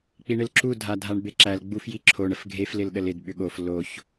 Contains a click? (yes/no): yes